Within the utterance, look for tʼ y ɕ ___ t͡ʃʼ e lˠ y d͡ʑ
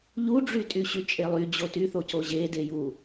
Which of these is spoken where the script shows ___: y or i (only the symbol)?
y